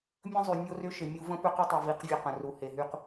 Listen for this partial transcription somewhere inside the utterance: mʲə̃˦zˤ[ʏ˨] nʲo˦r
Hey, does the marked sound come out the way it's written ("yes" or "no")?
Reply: no